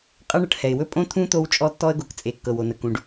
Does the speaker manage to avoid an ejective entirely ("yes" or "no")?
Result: no